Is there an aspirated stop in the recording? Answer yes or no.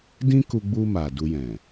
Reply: no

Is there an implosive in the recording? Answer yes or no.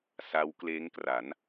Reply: no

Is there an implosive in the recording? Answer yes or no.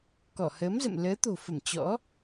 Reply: no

